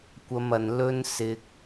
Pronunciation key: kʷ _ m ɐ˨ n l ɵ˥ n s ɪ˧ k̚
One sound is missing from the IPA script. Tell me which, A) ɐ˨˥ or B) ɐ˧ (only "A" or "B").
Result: B